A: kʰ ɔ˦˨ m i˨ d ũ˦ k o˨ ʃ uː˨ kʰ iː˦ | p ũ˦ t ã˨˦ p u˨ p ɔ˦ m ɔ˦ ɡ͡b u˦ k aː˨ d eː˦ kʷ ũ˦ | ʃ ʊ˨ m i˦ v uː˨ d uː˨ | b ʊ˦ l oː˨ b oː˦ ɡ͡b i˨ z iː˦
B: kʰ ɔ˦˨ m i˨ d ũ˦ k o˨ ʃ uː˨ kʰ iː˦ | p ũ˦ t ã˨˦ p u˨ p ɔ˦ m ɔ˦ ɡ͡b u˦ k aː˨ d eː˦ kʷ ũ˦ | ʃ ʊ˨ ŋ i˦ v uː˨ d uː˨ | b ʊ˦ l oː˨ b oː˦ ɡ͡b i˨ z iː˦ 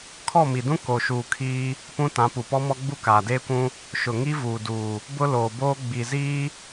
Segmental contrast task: B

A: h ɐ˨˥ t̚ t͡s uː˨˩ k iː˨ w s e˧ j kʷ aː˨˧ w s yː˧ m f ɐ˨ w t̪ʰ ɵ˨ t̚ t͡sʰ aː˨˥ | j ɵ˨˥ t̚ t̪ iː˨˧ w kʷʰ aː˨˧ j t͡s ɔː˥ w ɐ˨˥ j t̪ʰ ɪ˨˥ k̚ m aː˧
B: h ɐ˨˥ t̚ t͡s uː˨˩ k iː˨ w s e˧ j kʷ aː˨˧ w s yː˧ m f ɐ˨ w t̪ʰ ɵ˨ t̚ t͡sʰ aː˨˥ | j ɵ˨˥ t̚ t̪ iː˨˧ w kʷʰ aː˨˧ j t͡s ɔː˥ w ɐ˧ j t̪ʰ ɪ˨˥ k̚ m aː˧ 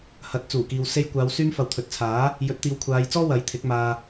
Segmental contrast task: A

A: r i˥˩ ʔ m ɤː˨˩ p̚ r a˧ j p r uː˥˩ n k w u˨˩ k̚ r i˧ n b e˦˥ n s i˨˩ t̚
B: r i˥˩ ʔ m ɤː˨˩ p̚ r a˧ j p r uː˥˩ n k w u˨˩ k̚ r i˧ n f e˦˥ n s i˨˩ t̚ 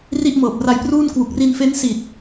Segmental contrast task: B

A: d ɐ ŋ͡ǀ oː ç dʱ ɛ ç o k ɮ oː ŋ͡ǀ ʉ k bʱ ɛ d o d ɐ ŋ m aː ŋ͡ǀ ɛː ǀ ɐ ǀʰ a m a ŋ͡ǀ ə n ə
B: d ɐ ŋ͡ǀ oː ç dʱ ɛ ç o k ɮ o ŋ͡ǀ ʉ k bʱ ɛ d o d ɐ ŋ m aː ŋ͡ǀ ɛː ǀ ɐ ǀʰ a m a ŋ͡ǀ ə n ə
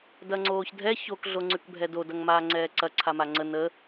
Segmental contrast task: B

